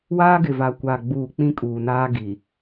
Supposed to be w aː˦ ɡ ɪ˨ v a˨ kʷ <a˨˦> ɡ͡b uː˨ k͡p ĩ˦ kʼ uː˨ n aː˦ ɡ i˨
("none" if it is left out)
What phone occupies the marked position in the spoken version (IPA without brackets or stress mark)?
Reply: a˨